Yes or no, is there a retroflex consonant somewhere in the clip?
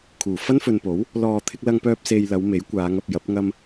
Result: no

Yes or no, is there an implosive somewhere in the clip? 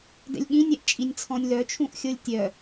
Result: yes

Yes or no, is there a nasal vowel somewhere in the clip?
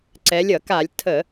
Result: no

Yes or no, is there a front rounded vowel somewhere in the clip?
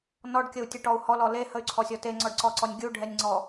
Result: yes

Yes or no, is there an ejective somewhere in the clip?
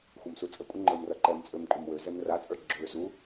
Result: yes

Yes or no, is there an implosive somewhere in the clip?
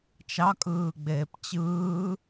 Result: no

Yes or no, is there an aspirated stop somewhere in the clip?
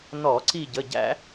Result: no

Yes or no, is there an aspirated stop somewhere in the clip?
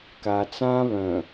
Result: no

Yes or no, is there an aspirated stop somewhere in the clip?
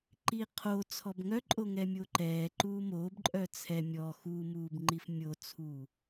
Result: yes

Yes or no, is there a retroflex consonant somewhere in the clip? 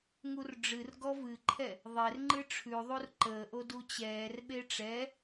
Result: yes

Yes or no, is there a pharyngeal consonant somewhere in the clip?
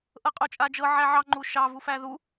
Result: yes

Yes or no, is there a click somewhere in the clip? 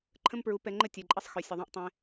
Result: yes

